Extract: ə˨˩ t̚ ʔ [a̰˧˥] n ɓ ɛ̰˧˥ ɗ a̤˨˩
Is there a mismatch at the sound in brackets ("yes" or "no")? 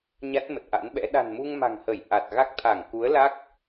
no